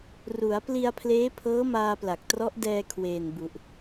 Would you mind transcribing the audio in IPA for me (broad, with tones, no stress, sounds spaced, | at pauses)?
r u˩˦ a̯ p l i˧ a̯ pʰ l eː˦˥ pʰ ɤː˦˥ m aː˧ p l a˨˩ k̚ t r ɔ˦˥ ʔ d ɛː˧ kʰ w eː˨˩ n b u˨˩ ʔ